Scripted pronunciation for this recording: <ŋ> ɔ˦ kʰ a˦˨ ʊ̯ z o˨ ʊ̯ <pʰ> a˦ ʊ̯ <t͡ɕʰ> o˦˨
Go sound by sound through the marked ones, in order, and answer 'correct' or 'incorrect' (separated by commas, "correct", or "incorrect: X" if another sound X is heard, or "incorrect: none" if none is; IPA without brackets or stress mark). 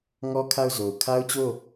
correct, incorrect: kʰ, incorrect: t͡ɕ